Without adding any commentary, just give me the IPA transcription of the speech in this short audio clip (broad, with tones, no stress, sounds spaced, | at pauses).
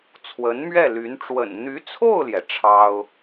t͡sʰ w ə˧˥ n m ɥ ɛ˥˩ l y˧˥ n ʈ͡ʂ w ə̰˨˩ n n̪ y˧˥ t͡sʰ o˥˩ ʊ̯ l j ɛ˩ ʈ͡ʂʰ ɑ˥ ʊ̯